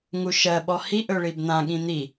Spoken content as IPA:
ŋ u ʃ ɜ ɓ ɔ h i ʔ ɵ ɭ i b n̪ ã ɠ ĩ n̪ i

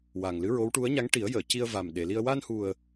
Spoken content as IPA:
w a˨˩ ŋ l ɨ˧˥ ɹ o˧˥ w ʈ u˧˥ ə̯ ɲ a˧˥ ŋ ʈ i˨˩˦ ə̯ j əː˨˩˨ c i˧ ə̯ v a˨˩ m ɗ e˨˩˨ l i˧ ə̯ w a˧ n h u˨˩ ə̯

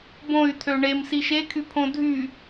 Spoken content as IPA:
b õ y̯ t̪ʰ ø ɳ e m s i ʃ e kʰ y pʰ õ dʱ y

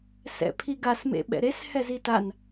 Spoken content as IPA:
s ɛ̰ pʰ i ɡ a s m ḛ ɓ ɛ̰ ɾ e s h ɛ z i t a n

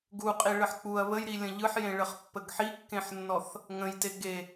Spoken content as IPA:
ɡ u qʼ i ɭ ə ħ k͡p u ɐ̯ β ə j ɾ i lʲ ə̃ ʎ ɯ ħ j ẽ ɭ ə χ pː ə ɡ ħ i kː ẽ ħ nː ɔ θ | ŋ ə̃ j t e ɡ e

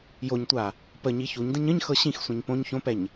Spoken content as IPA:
j o ɲ tʷ a | p ə ɲ i ç u ɲ d ə̃ ɲ ə̃ ɲ x ɤ ɕ ĩ x sʷ ɛ̃ ɲ p õ ɲ ç õ p ɛ ɲ

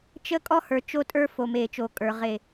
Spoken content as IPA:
t͡ʃ ə˦ kʼ ɔ˦ h ə˞˨ t͡ʃ o˦ tʼ ə˞˦ f o˨ m eː˨ t͡ʃ o˨ kʼ ə˞˨ ʁ e˦˨

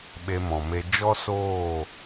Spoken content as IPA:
ɓ e˧ m ɔ̃˨ m e˧ d͡ʒ ɔ˦ s oː˦˨

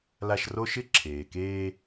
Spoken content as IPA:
l a˦ ʃ r o˥ ʃ ɪ˥ ǁʰ eː˨ k eː˦

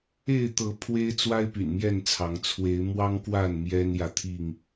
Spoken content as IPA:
e˥˨ ɪ̯ t̪ ɤ˨˦ pʰ w e˦ ɪ̯ t͡s w a˦ ɪ̯ p y̰˨˩ n m j ɛ˥˨ n t͡sʰ ɑ˨˦ ŋ t͡sʰ w e˨˦ ɪ̯ m w ɑ˦ ŋ k w a˥˨ n m j ɛ˦ n j ä˨ t̪ʰ i˥˨ ŋ

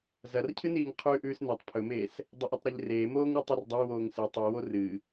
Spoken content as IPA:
z ɐ r cʰ ɨ n iː ŋ qʰ ʉː ʔ ʉː s n e tˤ pʰ ɵ m eː s | dˤ ɐ ʔ i tˤ ɾ e ʎ r eː m oː ŋ ɾ ɨ tˤ u r dˤ e w oː ŋ s ɨ tˤ i w o r ɨ

